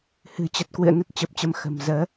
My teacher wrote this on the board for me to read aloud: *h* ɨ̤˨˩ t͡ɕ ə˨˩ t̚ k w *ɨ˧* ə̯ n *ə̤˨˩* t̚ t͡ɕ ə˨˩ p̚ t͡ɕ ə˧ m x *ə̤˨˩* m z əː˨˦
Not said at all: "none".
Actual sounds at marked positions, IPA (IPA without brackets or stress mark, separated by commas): h, ɨ̰˧˨, ə˦˥, ə̤˨˩